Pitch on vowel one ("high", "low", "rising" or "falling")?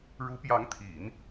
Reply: rising